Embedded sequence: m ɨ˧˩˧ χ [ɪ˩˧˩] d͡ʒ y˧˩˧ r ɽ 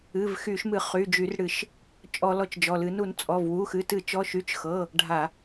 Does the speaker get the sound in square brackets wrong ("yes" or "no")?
yes